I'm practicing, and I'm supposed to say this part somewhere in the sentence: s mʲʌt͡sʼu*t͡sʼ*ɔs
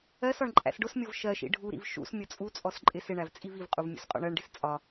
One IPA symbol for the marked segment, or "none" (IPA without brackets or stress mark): t͡sʼ